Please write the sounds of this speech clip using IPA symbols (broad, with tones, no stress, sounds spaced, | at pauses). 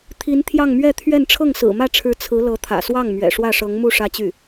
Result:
t̪ʰ i˧˥ n t̪ʰ j ɑ˥˧ ŋ m ɥ ɛ˥˧ t̪ʰ ɥ ɛ˥˧ n ʈ͡ʂʰ ɤ˥˩ ŋ s ɹ̩˨˩ m ä˥˩ ʈ͡ʂʰ ɻ̩˧˥ t͡sʰ ɹ̩˧˥ l ɤ˧˥ t̪ʰ ä̰˨˩ s w ɑ˥˩ ŋ m ɥ ɛ̰˨˩ ʂ w ä˥˩ ʂ ɤ˧˥ ŋ m u˥˩ ʂ ä˥ t͡ɕ y˥˩